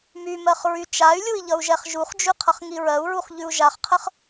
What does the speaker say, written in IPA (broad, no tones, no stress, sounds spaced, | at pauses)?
m y m ɜ χ ɹ y t͡ʃ a y̯ lʲ u i̯ ʎ ʌ u̯ ʒ ɛ χ ʒ u χ d͡ʒ ʉ qʰ ʌ χ ŋ i ɹ ɜ u̯ ɹ u χ ʎ ʉ u̯ ʒ a χ qʰ ə χ